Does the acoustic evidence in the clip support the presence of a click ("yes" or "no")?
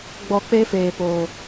no